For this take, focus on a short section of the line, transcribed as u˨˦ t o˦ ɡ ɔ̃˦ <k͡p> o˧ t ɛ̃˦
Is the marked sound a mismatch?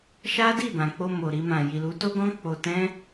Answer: no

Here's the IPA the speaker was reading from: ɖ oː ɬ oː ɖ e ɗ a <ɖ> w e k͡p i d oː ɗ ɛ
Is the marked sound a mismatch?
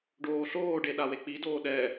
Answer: yes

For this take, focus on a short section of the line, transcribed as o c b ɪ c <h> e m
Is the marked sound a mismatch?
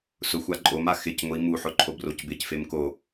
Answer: yes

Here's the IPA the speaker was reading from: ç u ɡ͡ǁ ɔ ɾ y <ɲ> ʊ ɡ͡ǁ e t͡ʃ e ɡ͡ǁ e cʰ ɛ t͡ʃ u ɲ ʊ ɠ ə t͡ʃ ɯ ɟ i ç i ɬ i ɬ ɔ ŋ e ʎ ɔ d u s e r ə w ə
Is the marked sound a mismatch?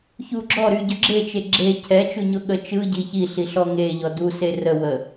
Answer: yes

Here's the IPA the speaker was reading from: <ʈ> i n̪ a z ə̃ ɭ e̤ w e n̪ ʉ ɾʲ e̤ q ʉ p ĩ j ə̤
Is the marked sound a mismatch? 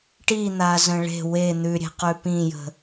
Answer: no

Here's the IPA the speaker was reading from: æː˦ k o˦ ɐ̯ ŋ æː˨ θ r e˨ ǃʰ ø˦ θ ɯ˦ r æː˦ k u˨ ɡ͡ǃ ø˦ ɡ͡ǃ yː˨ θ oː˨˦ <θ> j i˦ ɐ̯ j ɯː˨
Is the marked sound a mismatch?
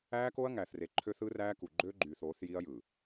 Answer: no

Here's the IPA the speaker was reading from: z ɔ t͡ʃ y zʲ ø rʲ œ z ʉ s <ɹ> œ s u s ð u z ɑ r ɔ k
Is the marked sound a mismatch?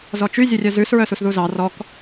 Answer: no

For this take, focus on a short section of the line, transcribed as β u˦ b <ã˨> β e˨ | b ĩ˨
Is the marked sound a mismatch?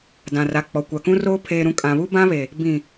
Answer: yes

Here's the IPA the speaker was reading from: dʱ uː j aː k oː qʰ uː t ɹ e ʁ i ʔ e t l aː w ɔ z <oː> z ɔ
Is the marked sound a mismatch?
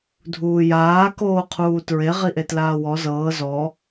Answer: yes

